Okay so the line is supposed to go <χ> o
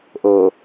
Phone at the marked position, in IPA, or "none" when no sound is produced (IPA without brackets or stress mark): ʔ